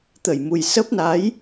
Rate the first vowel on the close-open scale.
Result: mid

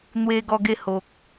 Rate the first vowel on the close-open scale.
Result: mid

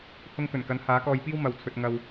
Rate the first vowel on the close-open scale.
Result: close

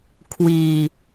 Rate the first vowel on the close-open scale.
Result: close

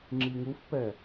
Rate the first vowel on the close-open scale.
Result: close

